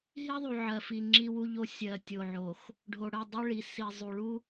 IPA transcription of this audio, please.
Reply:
ɦ i˦ ðˤ u˨ ʕ ɜ˨ f i˨ ŋ͡ǁ i˦ w u˦ ʎ o˦ sʲ ɜ˨ tʲ o˨ ʕ o˨ x | ɖʱ o˨ ɽ ɜ˦˨ dˤ u˦ ɭ i˨ s i˨ zˤ u˨ ɭ u˦

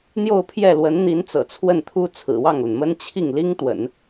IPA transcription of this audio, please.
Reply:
n̪ j o˥˧ ʊ̯ pʰ j ɛ˥˩ l w ə˧˥ n n̪ i˧˥ n t͡s ɤ̰˨˩ t͡sʰ w ə˥˩ n t̪ʰ u˥ t͡sʰ ɹ̩˨˩ w ɑ˥˩ ŋ l ə˩ n m ə˥ n t͡ɕʰ i˥˩ ŋ l i˥ ŋ t̪ w ə̰˨˩˦ n

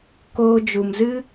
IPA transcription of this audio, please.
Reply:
k oː˧ d͡ʒ u˨ m z ɨ˦

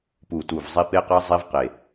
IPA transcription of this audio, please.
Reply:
p u˨˩ t u˨˩ v zˤ i˧ p e˧ q ɐ˧ zˤ i˧ v q e˨˩

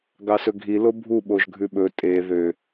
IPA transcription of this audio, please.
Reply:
ɡ ɑ s ɵ ɡʱ i l o bʱ u ɓ o ʒ ɡʱ ʉ ɓ ɵ tʼ e ð ø

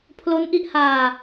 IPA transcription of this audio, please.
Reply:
pʰ l o˦˥ n ʔ i˦˥ ʔ h aː˧

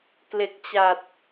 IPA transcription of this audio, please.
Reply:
k l e˨˩ k̚ t͡ɕ a˨˩ t̚

